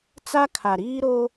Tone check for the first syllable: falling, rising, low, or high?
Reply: high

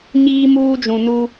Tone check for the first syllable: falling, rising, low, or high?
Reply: high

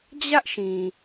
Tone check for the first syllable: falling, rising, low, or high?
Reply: high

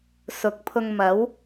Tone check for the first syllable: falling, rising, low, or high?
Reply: rising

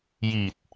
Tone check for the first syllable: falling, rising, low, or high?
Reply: low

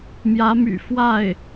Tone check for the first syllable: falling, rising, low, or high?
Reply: rising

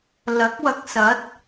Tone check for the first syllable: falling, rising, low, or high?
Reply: rising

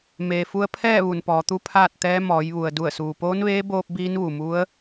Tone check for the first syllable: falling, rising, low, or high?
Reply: low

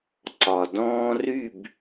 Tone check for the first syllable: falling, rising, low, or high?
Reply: low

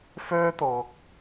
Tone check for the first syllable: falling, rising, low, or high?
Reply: high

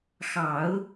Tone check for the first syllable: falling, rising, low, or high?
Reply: low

